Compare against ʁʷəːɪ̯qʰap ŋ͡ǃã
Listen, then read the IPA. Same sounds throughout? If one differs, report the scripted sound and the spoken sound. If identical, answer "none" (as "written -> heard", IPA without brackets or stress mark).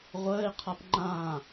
none